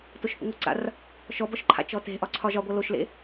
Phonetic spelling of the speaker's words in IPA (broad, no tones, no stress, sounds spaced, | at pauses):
t o ʃ θ ə̰ ŋʷ a ǀ a̰ r | ʃ ɔ b ɔ ʃ ǃʰ a̰ t͡ʃ ɔ t e̤ ʔ ɒ ǀʰ ɒ ʒ ɒ ɡʷ ʌ l o ʃ l ḛ